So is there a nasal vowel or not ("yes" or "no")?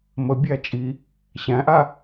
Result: yes